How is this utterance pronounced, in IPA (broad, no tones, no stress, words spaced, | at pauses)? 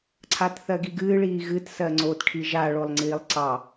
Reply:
ǀʰatθɜɡiɡɨː ɭiːɣɨt sɜŋ͡ǀoːtʈʰiʒa ɭolˠŋ͡ǀiːlˠǀɑ